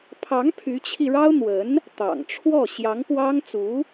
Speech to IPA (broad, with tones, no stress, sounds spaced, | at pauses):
pʰ ɑ˧˥ ŋ pʰ y˧˥ t͡ɕʰ i˧ ɻ ɑ˥ ʊ̯ n̪ w ə˧˥ n | t̪ ɑ̰˨˩ ŋ ʈ͡ʂʰ w ɔ˥˩ ɕ j ɑ˧˥ ŋ p w ɑ˥ ŋ t͡s u˧˥